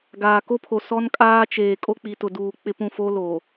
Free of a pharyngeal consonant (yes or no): yes